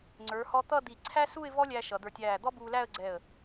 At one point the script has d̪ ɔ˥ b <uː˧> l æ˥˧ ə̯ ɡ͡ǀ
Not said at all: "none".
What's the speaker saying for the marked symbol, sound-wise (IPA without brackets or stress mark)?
uː˧